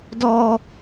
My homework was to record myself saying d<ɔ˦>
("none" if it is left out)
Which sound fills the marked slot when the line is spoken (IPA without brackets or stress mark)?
ɔ˦